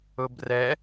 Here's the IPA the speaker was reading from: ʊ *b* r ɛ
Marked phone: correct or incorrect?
correct